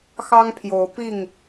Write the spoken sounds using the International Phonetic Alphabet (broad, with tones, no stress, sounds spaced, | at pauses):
x ɑ˦ ŋ pʰ j o˨˦ ʊ̯ p i˥˨ ŋ